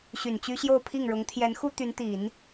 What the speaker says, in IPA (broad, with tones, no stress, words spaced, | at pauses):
ɕy˨˩nt͡ɕy˥ɕjo˥˧ʊ̯ pʰi˥˩ŋɻʊ˧˥ŋ t̪ʰjɛ˧˥nxu˥ t̪y˧˥nt̪i˨˩˦n